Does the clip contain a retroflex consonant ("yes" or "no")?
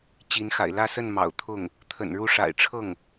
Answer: yes